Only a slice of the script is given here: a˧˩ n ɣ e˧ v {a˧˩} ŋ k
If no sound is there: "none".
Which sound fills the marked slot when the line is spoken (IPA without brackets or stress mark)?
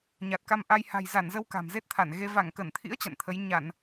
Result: a˧˩